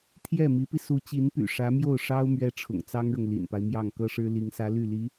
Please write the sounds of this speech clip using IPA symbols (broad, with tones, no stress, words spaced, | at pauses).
t̪ʰjɛ˥˩mi˧˥pi˧ su˧˥ t͡ɕi˧˥npy̰˨˩ ʂä˧˥mjo˥˩ʊ̯ ʂɑ˥ʊ̯ mɥɛ˥ʈ͡ʂʰʊ̰˨˩ŋt͡sɑ˥ŋɻʊ˨ŋ lḭ˨˩npa˦ɪ̯mjɑ˥˩ŋ kɤ˥ʂɻ̩˥ li˧˥ŋsä˧˥ ly˥˩li˧˥